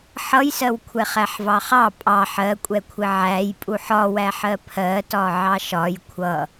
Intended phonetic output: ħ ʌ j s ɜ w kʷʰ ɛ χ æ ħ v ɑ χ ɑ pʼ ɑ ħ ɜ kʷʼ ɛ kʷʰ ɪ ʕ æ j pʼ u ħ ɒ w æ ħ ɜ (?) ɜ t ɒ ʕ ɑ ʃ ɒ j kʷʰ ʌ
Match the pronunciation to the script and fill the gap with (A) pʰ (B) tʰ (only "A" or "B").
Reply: A